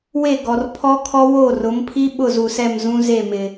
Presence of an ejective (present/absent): absent